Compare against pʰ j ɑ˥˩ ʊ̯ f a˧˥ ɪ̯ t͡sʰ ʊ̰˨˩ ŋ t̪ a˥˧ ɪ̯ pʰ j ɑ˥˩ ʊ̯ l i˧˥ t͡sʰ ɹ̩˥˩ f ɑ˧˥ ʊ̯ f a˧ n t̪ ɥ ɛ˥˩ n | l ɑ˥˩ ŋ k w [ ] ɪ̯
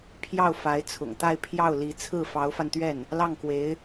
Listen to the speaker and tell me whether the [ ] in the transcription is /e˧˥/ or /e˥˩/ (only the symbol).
e˧˥